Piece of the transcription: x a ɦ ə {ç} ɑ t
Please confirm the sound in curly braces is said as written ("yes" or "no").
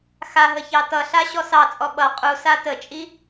yes